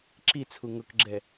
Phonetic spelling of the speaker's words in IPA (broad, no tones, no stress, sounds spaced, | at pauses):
ǁ i t͡sʰ u ŋ ʊ k ɡ͡ǁ ɛ